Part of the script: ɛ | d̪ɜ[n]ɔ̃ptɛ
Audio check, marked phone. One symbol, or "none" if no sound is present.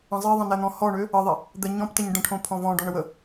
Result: ɲ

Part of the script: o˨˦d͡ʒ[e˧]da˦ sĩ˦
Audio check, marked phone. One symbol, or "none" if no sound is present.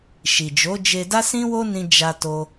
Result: e˧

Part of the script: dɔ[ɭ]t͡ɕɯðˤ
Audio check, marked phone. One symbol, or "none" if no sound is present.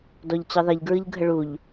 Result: ʎ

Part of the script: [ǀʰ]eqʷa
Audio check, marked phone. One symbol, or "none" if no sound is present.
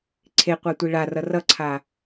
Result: ǀʰ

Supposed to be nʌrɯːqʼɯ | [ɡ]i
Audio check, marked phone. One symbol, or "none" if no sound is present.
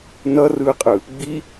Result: ɡ͡b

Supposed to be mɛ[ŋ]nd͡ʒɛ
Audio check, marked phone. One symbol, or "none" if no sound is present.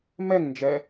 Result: ŋ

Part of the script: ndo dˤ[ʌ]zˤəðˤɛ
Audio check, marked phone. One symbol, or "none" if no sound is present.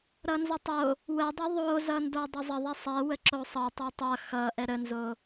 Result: ʌ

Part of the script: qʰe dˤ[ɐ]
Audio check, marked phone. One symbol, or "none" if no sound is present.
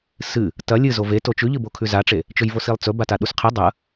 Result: ɐ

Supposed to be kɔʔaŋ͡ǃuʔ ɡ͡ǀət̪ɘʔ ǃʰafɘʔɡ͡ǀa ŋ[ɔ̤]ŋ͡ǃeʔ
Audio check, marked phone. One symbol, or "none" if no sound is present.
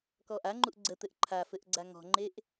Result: ɔ̤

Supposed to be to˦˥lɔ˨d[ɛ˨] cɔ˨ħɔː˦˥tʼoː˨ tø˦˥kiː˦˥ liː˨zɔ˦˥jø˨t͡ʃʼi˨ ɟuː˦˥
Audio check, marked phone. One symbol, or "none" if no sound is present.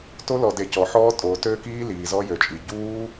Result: e˨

